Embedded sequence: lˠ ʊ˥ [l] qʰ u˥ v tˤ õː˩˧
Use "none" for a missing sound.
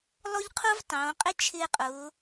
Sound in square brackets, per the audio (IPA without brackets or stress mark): ʎ